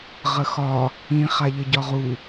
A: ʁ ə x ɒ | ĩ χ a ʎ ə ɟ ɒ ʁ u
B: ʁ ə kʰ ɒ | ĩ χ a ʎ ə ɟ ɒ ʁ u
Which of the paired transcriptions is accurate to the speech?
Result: A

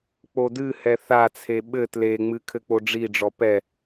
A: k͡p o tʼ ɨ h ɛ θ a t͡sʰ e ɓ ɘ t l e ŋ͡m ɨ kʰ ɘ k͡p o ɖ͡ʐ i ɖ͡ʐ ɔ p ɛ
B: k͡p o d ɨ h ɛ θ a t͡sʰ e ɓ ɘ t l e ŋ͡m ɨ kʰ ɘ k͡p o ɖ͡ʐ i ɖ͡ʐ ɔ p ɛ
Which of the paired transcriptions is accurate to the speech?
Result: B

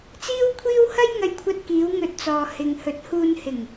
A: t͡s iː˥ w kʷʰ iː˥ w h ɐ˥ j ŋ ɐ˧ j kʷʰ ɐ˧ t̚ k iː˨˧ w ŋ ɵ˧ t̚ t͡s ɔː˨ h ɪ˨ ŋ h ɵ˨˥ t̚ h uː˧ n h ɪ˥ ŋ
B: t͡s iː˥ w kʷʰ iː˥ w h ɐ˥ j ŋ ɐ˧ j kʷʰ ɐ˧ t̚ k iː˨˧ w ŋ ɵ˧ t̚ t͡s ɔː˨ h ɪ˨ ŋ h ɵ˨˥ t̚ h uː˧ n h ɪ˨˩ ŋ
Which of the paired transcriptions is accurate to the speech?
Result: B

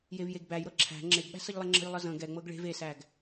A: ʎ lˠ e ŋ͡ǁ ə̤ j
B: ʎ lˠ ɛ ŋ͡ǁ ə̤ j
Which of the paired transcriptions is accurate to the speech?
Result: B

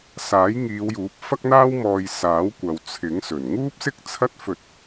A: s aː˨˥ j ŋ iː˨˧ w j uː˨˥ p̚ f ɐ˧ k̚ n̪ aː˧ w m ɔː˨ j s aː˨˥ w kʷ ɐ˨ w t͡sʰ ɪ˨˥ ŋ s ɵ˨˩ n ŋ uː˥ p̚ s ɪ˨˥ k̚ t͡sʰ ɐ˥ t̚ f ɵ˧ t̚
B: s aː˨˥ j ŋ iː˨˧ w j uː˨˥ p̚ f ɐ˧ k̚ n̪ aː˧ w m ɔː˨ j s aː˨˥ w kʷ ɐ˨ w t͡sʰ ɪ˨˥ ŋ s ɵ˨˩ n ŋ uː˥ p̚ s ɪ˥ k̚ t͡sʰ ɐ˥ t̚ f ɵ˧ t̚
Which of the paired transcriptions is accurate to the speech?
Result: B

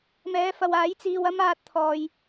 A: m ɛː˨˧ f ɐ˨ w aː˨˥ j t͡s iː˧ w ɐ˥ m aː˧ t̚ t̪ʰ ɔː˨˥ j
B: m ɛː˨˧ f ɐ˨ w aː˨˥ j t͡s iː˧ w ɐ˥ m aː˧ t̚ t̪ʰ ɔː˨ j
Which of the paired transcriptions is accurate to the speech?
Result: B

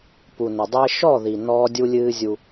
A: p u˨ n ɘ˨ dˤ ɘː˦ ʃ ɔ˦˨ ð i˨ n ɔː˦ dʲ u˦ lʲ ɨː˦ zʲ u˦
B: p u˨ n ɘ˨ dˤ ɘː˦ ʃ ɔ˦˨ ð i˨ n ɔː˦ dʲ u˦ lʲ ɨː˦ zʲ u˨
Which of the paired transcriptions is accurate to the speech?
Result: A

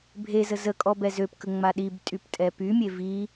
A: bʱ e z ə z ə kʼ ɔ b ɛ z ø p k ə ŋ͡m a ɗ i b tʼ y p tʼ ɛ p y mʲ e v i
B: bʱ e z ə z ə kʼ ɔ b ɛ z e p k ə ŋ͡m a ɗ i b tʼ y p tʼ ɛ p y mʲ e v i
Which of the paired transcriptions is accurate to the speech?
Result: A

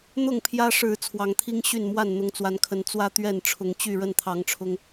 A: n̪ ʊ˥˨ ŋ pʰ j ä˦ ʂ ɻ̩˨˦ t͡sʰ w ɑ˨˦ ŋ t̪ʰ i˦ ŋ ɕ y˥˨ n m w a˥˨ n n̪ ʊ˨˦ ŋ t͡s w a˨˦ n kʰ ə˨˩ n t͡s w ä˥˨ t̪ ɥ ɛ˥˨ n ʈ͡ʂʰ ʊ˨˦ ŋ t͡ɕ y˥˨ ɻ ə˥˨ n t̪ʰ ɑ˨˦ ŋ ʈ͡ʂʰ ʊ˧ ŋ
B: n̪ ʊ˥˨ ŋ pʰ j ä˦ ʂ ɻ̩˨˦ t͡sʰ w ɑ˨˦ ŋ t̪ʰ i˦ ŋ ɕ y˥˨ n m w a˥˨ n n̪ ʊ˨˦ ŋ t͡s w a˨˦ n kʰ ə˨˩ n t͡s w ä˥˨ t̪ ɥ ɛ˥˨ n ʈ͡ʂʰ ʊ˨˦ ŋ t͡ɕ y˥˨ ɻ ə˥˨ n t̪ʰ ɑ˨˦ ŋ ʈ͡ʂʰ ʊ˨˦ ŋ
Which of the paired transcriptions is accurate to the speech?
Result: A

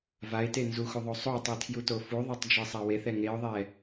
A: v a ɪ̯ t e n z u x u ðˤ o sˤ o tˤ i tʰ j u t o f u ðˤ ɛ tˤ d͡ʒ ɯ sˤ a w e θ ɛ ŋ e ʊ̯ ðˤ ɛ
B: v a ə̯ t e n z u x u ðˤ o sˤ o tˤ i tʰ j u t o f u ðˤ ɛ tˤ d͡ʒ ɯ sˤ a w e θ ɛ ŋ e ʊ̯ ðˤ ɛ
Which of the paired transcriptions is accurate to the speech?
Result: A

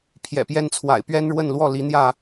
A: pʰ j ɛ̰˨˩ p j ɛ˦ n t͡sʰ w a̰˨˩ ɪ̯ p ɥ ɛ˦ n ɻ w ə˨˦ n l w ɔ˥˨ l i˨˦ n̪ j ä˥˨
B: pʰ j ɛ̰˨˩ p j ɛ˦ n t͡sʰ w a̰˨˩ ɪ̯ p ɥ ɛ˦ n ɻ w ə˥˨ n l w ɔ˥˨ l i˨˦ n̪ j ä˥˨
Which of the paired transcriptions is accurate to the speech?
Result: B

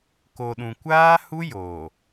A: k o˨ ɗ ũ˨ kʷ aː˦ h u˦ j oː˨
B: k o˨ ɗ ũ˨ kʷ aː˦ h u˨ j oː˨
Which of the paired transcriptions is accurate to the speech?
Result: A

